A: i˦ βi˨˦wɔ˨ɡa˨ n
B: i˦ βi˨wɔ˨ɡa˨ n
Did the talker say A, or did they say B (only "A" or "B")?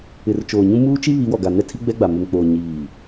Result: A